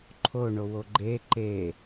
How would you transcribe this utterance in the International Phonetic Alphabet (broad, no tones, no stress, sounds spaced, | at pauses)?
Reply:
ǃʰ o ɳ o w o ɡ͡ǃ e ǃ e